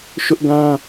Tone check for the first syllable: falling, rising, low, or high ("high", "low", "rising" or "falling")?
high